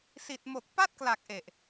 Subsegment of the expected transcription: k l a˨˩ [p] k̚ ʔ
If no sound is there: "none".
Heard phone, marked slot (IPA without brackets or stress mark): none